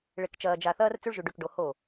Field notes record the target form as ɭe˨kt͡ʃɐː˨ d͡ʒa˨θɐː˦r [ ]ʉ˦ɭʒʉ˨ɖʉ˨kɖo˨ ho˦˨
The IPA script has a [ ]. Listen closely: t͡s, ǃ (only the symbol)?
t͡s